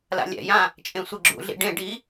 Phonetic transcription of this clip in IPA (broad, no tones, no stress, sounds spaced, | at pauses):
l a̰ lʲ ɛ̰ j ã | t͡ʃʼ ẽ sʷ i ɡ͡ǁ ṵ ɮ ḭ ɖ ẽ ɖ i